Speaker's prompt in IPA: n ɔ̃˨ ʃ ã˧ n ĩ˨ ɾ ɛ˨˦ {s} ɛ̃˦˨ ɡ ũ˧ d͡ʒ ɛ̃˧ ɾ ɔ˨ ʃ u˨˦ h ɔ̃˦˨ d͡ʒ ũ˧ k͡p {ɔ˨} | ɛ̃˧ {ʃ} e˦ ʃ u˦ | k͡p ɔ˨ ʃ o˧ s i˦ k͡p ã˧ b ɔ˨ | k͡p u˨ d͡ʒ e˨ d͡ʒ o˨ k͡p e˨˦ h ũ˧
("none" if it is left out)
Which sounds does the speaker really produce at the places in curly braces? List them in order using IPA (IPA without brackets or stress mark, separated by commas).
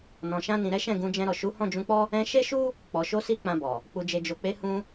ʃ, ɔ˦, ʃ